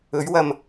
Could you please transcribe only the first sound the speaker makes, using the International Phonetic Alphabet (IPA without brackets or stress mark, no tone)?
ɵ